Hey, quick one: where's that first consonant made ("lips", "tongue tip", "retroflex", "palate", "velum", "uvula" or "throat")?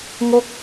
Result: velum